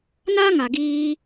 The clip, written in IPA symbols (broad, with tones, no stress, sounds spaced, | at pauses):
n aː˦ ŋ a˨ ɡ iː˧